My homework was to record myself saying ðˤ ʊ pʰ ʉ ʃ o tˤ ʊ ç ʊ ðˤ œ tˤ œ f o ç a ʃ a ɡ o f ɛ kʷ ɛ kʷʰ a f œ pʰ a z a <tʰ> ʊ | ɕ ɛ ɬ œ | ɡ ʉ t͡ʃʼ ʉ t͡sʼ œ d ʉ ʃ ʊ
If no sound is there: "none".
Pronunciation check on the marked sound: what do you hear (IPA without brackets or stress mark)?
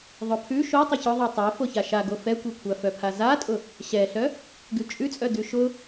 tʼ